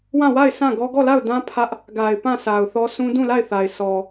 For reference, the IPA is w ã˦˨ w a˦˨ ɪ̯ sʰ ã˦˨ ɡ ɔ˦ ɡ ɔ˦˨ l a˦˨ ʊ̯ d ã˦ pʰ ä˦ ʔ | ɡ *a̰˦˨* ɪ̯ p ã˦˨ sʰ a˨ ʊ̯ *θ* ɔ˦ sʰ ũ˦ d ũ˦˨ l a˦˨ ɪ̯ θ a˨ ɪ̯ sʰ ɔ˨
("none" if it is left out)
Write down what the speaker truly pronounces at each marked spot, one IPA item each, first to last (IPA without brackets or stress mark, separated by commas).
a˨, θ